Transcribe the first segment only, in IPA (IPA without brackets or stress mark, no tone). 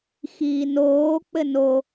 x